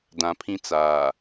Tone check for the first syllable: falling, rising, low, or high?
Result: low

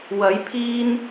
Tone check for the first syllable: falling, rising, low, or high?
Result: rising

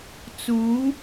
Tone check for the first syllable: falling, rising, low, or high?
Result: rising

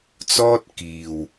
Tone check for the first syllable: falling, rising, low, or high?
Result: high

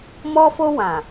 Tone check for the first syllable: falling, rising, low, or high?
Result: high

